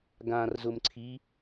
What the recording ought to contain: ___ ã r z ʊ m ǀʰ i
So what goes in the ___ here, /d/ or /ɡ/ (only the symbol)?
ɡ